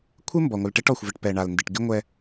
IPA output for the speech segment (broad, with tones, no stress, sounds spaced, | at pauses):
kʷʰ ɪ˦ m b ɔ˨ ŋʷ ɪ˨ l ʈ ɛ˦ ʈ ɔ˨ xʷ v ɪ˨ ʈ p ɛ˨ ɳ a˨ l n d ɪ˨ ʈ ɡ ɪ˦ ŋʷ ɛ˦